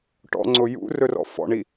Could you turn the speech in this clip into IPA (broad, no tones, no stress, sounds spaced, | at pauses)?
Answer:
ʈ ɔ̰ ŋ͡ǀ ʊ j ṵ r ɵ r ɔ̰ f ɔ̰ ɳ i